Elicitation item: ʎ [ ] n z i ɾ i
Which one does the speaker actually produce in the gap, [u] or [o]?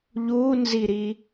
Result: u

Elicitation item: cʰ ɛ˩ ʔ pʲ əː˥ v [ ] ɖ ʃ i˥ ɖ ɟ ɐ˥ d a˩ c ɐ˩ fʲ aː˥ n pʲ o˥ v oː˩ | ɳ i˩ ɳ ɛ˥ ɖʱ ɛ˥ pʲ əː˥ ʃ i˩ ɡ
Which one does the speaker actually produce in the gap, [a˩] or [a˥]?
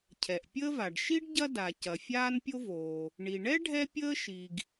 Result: a˩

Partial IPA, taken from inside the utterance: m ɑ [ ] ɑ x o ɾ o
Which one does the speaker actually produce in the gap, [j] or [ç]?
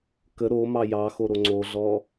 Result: j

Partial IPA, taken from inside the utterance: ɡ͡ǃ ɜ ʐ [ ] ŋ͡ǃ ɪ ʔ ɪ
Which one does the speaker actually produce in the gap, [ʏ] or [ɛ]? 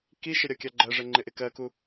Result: ɛ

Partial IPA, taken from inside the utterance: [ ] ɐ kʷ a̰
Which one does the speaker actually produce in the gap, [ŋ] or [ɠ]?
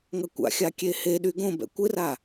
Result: ŋ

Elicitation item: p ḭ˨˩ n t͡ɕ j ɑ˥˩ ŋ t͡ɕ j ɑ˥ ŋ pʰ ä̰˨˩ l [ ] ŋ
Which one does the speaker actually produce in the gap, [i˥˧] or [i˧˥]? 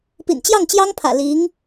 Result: i˧˥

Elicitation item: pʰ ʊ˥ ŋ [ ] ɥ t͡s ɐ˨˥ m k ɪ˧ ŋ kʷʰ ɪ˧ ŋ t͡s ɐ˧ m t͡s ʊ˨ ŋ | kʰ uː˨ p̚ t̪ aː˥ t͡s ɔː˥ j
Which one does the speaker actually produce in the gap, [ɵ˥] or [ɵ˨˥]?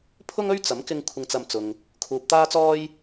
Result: ɵ˥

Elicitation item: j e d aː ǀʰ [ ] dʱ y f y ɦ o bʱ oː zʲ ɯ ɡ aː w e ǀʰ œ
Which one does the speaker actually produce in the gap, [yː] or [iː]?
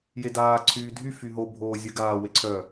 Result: yː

